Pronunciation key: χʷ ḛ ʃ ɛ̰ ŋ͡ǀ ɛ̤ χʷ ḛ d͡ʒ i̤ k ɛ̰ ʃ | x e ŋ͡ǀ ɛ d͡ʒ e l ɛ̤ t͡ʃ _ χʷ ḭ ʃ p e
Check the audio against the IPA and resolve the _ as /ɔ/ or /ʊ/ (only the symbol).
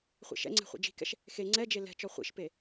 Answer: ɔ